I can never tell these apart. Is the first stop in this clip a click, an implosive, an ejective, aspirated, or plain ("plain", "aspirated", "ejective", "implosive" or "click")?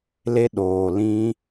implosive